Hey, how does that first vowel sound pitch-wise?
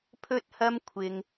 high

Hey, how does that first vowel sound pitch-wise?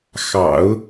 low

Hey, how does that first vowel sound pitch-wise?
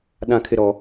high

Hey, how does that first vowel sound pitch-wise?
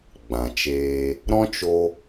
low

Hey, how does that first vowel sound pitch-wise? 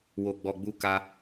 low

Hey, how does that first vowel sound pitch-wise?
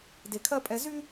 low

